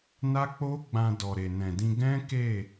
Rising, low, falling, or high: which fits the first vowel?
high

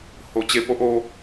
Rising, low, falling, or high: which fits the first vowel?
low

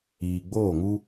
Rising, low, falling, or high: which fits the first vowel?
low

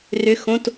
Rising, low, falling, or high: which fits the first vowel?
rising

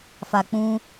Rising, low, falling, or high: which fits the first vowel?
low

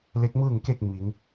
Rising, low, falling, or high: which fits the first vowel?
rising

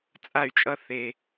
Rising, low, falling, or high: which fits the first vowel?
falling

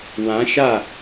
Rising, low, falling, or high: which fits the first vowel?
rising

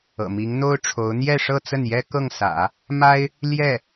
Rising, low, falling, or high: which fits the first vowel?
low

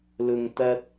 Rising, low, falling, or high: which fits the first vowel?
low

